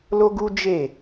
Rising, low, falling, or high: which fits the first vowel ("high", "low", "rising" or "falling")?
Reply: high